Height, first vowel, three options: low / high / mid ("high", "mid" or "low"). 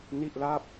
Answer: high